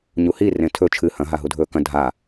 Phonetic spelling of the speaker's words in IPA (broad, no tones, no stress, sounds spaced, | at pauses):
ɲ u h i r ẽ tʰ ɵ t͡ʃʰ ɨ h ɐ̃ ɦ a ɦ u dʱ ɵː k ɐ̃ dʱ a